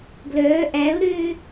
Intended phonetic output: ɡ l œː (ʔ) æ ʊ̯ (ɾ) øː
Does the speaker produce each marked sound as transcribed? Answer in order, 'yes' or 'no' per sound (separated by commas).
yes, yes